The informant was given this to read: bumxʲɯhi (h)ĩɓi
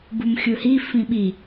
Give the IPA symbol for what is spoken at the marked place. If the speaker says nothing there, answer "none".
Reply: f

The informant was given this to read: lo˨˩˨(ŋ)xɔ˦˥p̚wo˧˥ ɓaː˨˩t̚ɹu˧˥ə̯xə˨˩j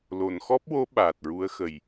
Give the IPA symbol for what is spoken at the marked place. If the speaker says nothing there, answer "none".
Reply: n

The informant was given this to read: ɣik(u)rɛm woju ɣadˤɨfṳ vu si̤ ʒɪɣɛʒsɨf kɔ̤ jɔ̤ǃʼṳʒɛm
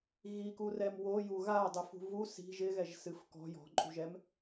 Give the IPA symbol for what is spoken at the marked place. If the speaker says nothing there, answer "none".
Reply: u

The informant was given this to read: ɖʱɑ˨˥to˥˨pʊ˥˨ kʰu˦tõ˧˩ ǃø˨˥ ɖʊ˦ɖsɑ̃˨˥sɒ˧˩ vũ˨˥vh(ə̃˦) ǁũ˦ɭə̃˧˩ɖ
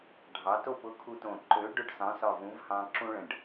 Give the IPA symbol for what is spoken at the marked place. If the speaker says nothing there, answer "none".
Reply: ɑ̃˦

